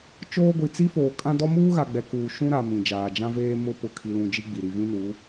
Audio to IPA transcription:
t͡ʃoː˦ɡʷi˨ t͡si˦foː˨ kʼã˦dɔ˦ muː˦ɣa˨ɡ͡bɛ˨ kuː˨ ʃũ˦ɾa˨ mĩ˨d͡ʒaː˨ d͡ʒã˦veː˦ mʊ˦ pʊ˨kʰi˨lũ˨ d͡ʒi˦ɡ͡bi˨ ɾi˨vĩ˦nuː˨˦

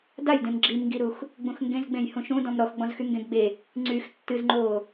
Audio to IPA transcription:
dajdẽm ɡ͡ǁimŋɡiɾux | ɡ͡bũxŋɡẽzɡ͡bẽj hũʃũdɔ̃m ɾɔxɡ͡bɔ̃zxy ŋɡẽɡɡ͡be | ŋ͡ǀyx tːɨzŋ͡ǃoː

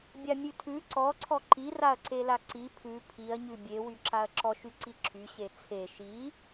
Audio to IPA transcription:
bʲamʲʉtʰʉ ǀɔ ǀʰɔǃi raɐ̯ǀelaǀi pʰʉ pʰiɐ̯ɲʉ bʲe wyǁaɐ̯ǁɔʃ yǀiǁʰyɕe t͡sʰe ʃi

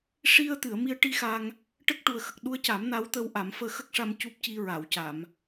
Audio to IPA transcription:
ʂi˧ə̯t̪ɨ˨˩˨ə̯mi˧ə̯ʈi˧ xa˧ŋ | ʈə˦˥k̚ʈu˨˩ə̯xə˨˩k̚ ɗu˧ə̯ca˨˩˦m na˧˥wt̪əː˧w ʔa˨˩˦mfəː˧xə˦˥k̚ʂa˧m cu˦˥p̚ci˧ ɹa˨˩˨wca˨˩˨m

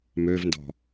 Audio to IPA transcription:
møvndɔ̤

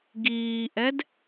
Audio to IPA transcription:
ɡiːʔɛd

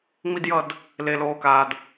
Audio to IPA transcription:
ŋ͡mi˧djʌ˧d | le˨loː˨kaː˨d

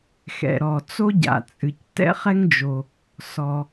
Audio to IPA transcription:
xɛ̰˩ɾɔ˩ t͡so˥ɟa̰˩t͡sʼɨ˩c tɛ̰˥χɛ˥ŋd͡ʒo˩ | sɔ˩

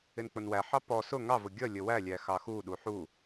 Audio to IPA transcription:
ɪnk͡pʊnwæħɑ pɔ sʊ ŋɑvʊ ɡʲʌlʲə wælʲæ xɑxuɗu ħu

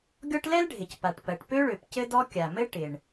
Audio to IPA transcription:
ɡʲɔ˥ʈ lɛ˥lɖʱɪ˩c pa˩ʈpɜ˩ʈpø˥ɭø˩p cɘ˥dɔ˥ kʲa˩mɘ˥ ʈɪ˩ɳ

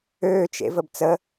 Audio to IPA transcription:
øːt͡ʃ ḛvəbt͡sə

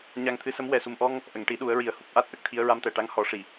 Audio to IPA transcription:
ɲa˧ŋt̪ʰɨ˧˥sə˧˥m wɛ˨˩su˨˩mʔɔ˧ŋ | ʔə˨˩˨ŋʈi˨˩˦ ɗu˨˩˦ə̯ɹi˨˩˦ə̯ hu˦˥p̚ʔa˦˥t̚ʔə˦˥k̚t̪ʰi˧˥ə̯ ɹa˧mt̪ɛ˨˩ʈa˧˥ŋ hɔ˨˩˦ʂi˨˩˨

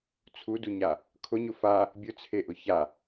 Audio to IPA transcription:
t͡sʰuduɲa | kʰʊɲʊ fa | bʲʊt͡sʰeʔʊ ça

